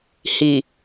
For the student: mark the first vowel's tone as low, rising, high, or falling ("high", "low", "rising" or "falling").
low